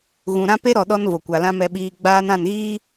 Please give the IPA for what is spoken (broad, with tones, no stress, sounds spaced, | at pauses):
ɣ ũ˨ ɾ ã˦ p e˦ ɾ ɔ˨ ɗ ɔ˦ n v o˨ kʷ a˨ l ã˦ m ɛ˦ ɓ iː˦ ɡ͡b aː˦ n ã˦˨ n ɣ iː˦